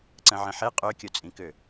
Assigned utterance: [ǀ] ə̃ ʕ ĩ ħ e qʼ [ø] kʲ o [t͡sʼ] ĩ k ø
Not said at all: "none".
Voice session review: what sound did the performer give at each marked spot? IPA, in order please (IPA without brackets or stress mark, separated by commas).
ǀ, ø, t͡sʼ